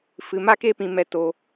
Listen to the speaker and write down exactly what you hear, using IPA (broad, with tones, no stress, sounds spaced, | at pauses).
f ɨ˧ m a˦ k e˦ p ĩ˧ m ɛ˧ t o˧